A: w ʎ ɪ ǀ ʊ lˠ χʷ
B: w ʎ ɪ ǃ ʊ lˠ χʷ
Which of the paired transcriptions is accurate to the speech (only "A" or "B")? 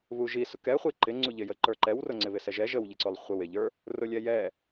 A